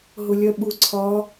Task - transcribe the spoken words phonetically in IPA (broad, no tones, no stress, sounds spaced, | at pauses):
ɦ ʊ lʲ ɜ ɓ u ǀʰ ɒ